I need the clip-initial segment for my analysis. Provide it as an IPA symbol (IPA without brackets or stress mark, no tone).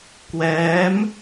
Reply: k